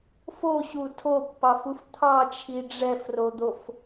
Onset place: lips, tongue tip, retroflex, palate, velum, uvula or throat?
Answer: lips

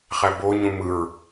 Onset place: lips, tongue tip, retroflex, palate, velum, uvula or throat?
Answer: uvula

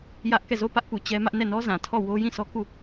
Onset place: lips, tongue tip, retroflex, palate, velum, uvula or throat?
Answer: palate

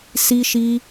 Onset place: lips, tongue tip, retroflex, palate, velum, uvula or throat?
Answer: tongue tip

